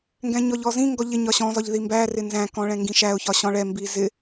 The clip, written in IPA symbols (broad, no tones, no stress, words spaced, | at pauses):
ŋɡɛ̃ɲɔʎɔzĩ ŋɡɔʎɪ ɲɒɕɔ̃ zɒʎðimbæ rɪnzæ̃ kɔ̃ɭɛ̃ŋɡĩʃæʊ̯ çɒɕɔ̃ɭɛ mbizɪ